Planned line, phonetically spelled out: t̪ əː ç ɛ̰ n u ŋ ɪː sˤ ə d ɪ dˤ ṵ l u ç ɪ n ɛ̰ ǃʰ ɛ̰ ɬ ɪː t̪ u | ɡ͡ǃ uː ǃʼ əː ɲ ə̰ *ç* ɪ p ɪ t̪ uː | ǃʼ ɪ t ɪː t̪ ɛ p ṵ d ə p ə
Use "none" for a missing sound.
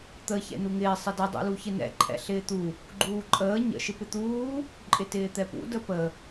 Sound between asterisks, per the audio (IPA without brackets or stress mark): ʃ